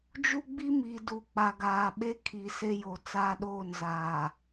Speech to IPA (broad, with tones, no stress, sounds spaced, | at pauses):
d͡ʒ u˦ ɡ͡b i˦ m i˨ d u˨ k͡p a˨ ɡ aː˨ ɓ e˦ kʰ i˨ s e˦ j o˨ t͡s aː˦ ɗ oː˦˨ n z aː˨